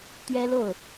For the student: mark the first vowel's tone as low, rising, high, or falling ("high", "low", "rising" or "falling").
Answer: high